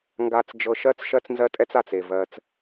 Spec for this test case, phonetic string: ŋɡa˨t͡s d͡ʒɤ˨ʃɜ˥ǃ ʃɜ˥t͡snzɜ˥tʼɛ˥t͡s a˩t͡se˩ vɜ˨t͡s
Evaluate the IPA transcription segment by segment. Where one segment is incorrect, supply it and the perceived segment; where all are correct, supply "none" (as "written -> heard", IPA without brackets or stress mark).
ǃ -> t͡s